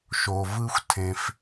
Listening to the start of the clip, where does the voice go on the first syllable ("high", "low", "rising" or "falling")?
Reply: low